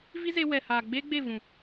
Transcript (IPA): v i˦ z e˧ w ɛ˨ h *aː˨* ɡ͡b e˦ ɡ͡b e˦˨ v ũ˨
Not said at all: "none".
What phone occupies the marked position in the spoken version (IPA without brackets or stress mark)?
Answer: aː˨